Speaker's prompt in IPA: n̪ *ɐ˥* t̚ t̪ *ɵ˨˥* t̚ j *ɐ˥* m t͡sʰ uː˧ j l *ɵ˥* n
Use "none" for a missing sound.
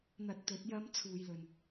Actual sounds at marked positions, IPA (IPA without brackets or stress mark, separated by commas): ɐ˧, ɵ˨˥, ɐ˥, ɵ˨